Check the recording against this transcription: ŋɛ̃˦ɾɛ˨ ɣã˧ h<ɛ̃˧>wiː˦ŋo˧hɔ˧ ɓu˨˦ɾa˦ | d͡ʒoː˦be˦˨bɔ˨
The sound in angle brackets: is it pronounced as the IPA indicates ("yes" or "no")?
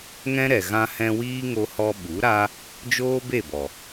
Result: yes